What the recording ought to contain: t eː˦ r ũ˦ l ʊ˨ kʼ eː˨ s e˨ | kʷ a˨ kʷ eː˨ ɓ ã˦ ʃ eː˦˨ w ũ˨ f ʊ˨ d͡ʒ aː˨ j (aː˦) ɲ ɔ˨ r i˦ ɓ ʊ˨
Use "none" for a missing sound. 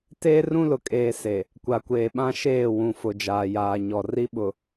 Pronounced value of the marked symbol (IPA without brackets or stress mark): aː˨